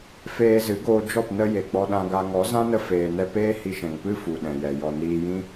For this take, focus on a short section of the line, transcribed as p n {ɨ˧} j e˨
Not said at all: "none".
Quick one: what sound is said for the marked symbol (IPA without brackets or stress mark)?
ə˧